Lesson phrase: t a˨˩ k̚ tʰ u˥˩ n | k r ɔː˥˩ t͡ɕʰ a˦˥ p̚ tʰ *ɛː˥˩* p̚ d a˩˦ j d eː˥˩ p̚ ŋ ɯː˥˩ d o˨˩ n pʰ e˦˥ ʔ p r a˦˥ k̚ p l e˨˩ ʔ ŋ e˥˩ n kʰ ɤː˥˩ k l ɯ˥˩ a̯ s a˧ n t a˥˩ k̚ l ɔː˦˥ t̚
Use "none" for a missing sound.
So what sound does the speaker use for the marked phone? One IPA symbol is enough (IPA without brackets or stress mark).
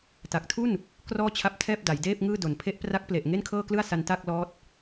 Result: ɛː˥˩